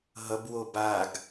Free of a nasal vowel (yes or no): yes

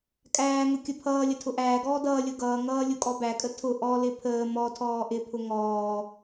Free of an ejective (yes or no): no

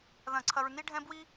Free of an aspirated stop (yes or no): no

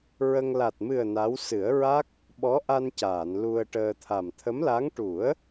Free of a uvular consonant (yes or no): yes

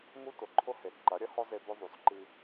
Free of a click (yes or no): no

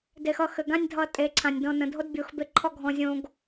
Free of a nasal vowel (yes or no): no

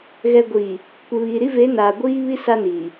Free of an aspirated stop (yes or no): yes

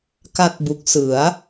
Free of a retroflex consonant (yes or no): yes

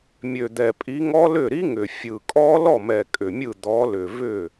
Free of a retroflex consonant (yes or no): yes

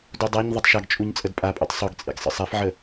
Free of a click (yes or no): yes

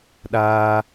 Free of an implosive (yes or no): no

